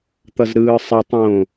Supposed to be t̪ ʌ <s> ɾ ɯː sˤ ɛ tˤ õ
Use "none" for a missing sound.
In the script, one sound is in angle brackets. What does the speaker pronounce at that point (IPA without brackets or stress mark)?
z